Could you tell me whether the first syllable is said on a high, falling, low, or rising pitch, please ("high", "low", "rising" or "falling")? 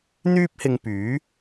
high